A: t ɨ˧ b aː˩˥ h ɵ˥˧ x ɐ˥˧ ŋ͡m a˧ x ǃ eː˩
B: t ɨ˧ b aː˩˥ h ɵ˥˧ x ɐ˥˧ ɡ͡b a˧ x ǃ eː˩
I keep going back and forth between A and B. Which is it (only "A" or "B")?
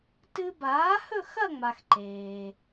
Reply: A